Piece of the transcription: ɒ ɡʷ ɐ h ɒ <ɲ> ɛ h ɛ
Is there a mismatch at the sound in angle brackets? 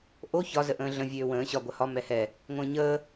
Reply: yes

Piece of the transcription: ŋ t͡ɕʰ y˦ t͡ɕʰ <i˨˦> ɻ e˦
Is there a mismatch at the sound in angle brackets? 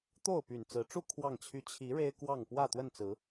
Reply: no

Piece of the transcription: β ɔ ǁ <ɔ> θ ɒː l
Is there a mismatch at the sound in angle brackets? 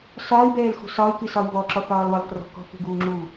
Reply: no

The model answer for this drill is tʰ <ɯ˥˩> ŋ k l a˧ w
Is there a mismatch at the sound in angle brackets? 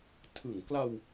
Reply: yes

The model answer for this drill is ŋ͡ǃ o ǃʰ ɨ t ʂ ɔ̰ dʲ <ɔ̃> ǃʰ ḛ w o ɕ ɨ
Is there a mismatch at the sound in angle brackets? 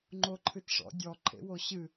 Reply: yes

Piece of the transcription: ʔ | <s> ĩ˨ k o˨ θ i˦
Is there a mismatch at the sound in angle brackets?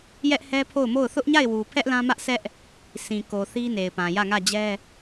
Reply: no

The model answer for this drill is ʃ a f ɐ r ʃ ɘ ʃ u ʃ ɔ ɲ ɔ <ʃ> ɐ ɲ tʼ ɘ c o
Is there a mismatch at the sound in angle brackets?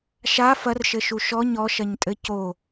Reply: no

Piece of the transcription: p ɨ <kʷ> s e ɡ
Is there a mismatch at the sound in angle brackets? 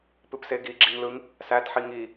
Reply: yes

